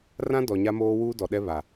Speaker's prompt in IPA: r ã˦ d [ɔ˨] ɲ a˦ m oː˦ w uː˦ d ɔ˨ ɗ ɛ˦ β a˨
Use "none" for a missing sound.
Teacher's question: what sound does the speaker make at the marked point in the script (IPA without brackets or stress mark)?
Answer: ɔ˨